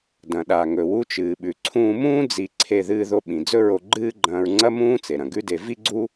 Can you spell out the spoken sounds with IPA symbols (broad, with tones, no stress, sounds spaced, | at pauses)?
d ɐ̃˩ ɗ a˩ ŋ ɵ˩ w u˧ t͡ʃ ɨː˩ ɓ ʉ˩ ǀʰ ũː˧ m ũː˥ d͡z i˧ ǀʰ e˧ ð ɨː˧ ð o˧ ɓ ĩ˩ d͡z ɵ˥ ɹ o˧ ɡ͡ǃ ɨː˥ ɡ͡ǃ ɐ̃ː˧ ɹ ŋ͡ǀ ɐ˥ m ũː˥ t͡s e˩ ɾ ɐ̃˩ ɡ ʉ˥ d e˧ v i˥ ɡ͡ǀ u˥